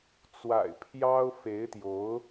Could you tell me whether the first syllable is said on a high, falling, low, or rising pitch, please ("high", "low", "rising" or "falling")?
low